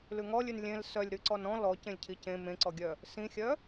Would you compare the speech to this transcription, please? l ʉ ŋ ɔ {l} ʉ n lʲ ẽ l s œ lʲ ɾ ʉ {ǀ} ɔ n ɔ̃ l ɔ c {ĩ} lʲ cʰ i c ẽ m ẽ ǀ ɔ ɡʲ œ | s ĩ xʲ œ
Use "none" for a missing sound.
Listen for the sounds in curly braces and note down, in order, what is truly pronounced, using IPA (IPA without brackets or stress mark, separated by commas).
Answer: lʲ, ǀ, ẽ